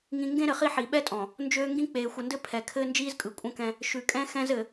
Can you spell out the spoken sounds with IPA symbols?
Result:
ŋĩ˨ŋɡẽ˦ ɾɘ˨χi˦ħi˨ ɓɛ˦tʼɔ̃˨ | nd͡ʒøː˦ ŋɡĩ˦k͡peː˨ xʷə˨ndɘ˦ pʰɛ˨ kʰɘː˦nd͡ʒiː˦zkʼɯ˨ kʷʼə̃˦kɛ̃˦ | ʃʉ˨kʼɛ̃˦ xɛ̃˦zɘ˨

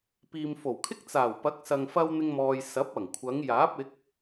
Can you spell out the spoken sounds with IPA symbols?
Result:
piː˨mfo˨˩wkʰɪ˥k̚ t͡saː˨˩wpɐ˨˥k̚sɐ˨ŋ fɐ˥wn̪ɪ˥ŋmɔː˧j sɐ˨˥p̚ɐ˨˩ŋkʷʰɐ˨˧ŋ jaː˨˥p̚ɪ˨˥k̚

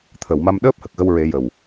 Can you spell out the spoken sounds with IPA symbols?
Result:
t̪ʰə˨˩˨wma˧m ɗəː˦˥p̚hə˨˩k̚ɣə˧wɹe˨˩˦ jə˨˩w

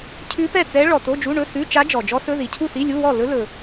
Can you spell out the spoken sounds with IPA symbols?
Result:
cʰʉ˦˥pɛ˥˨t͡sɛ˦˥ ɭɔ˨to˧˥˧d͡ʒu˧˥˧ɳɵ˧˥˧ sʉ˧˥˧t͡ʃa˦˥d͡ʒɔ˨ d͡ʒɔ˦˥sɵ˧˥˧ði˨ cʰu˥˨si˧˥˧lʲu˧˥˧wɔ˥˨ lɵ˦˥lɵ˨

